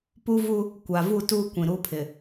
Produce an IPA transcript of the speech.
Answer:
p u˦ v u˦ | kʷ a˨ v u˦˨ t uː˦ kʷ ĩ˨ ɾ uː˦ pʰ ɪ˨

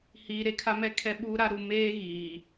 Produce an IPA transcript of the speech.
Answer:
h iː˨ ɾ e˦ kʰ a˦ m ɛ˦ kʰ ɛ˦ ɓ uː˦ ɾ a˦ ɾ u˨ m eː˦ ɣ iː˨

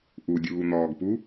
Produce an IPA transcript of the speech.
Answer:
ʔ u dʲ uː n̪ ɔː ɡ p u

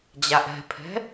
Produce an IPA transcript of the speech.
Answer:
d͡ʑ a ʔ ɛ̤ pʰ ɛ̤

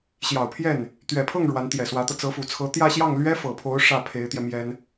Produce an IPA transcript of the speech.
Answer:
ɕ j ɑ˨˩ ʊ̯ pʰ j ɛ˥˩ n | t̪ ɥ ɛ˨˩ pʰ ɤ˥˩ ŋ ɻ w a˧˥ n t̪ j ɛ˨˩ s w ä˧˥ t̪ ɤ˧ t͡s ɤ˧˥ f u˨˩ t͡sʰ ɤ˧˥ t̪ j ä˥˧ ɕ j ɑ˥˩ ŋ l ɥ ɛ˥ f ɤ˨˩ pʰ o˧˥ ʊ̯ ʂ ä˥˩ pʰ e˧˥ ɪ̯ t̪ j ɛ˧ m j ɛ˥ n

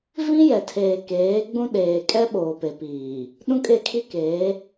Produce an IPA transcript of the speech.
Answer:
v ĩ˦ j ɛ˨ tʰ eː˨ k eː˨˦ ɡ͡b ũ˦ ɗ eː˨ kʼ ɛ˦ ɓ oː˨ p e˨ p iː˨ | ɗ ũ˦ kʼ e˦˨ kʰ i˦ k eː˨˦

